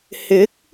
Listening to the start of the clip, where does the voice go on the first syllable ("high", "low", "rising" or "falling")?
rising